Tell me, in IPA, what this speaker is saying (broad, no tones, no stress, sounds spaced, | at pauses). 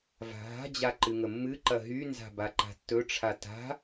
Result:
v a̤ ɦ a̤ d͡ʑ a ǃ ɨ ŋ ə mː ɨ ǃ ɐ ɦ y n z a̤ b a ǃ a̤ tː ɵ ʈ͡ʂʰ a t a̤